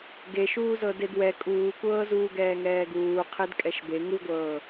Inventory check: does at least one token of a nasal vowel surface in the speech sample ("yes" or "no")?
no